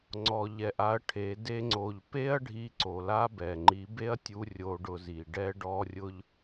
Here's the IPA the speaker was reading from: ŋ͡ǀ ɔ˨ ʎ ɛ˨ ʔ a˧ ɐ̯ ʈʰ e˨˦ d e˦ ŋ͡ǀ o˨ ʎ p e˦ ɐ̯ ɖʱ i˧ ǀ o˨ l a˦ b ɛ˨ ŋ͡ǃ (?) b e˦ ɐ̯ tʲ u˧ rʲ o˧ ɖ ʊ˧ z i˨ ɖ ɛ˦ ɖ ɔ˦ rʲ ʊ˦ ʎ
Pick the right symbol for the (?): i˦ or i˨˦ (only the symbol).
i˨˦